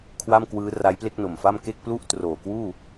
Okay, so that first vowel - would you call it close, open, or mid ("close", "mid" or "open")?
open